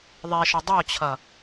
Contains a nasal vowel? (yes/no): no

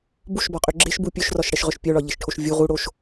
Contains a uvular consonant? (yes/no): yes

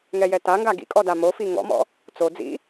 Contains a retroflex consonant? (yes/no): no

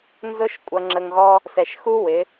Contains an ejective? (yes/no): yes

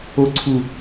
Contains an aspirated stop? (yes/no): yes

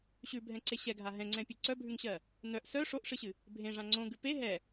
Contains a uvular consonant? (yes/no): no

